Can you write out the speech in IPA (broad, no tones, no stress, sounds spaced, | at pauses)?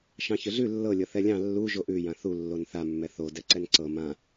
ʃ ɑ̃ ç ʏ ɮ ʉ lː ɤ lʲ ɤ θ ɛ lʲ ɑ̃ lː u ʒ o ʔ ʉ j ã θ u lː o n θ a mː ɛ θ o d ɛ ǀ ɛ n ǀ ɤ m ã